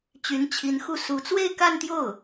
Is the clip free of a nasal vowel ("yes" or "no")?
yes